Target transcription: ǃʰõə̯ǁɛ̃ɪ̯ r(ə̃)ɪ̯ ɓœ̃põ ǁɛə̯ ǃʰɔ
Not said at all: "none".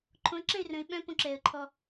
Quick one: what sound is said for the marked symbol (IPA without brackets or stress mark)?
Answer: ə̃